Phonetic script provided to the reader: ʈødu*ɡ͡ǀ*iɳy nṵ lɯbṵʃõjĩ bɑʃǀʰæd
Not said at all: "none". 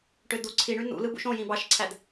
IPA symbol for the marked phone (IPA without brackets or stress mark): ǀʰ